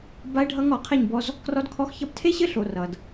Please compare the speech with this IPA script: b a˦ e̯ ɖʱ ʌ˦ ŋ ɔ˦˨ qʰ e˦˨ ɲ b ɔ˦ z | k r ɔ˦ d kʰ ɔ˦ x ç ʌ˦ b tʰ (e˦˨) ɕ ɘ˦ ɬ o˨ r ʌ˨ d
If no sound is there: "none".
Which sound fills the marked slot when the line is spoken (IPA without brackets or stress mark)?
e˦